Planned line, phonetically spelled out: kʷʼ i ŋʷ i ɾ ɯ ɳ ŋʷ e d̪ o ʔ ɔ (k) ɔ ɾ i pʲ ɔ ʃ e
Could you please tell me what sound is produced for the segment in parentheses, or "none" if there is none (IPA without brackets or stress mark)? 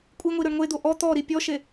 t̪